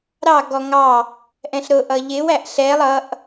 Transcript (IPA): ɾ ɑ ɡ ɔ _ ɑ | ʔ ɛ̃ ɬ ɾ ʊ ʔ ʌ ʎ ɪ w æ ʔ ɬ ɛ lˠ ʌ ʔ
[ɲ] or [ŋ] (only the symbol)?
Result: ŋ